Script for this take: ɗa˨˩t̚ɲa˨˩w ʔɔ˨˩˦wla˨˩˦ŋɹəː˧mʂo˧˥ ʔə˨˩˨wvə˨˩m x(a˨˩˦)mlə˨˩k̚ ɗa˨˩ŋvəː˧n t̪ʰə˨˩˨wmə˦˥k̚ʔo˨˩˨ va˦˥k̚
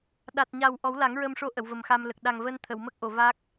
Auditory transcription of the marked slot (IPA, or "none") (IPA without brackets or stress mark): a˧